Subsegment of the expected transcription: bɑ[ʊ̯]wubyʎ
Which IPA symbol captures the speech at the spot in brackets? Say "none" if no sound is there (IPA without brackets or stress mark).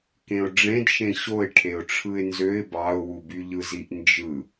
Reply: ʊ̯